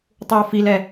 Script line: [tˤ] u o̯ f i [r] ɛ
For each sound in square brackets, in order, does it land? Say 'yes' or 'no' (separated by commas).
yes, no